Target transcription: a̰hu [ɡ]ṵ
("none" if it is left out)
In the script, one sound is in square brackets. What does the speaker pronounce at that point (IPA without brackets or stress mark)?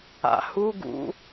ɡ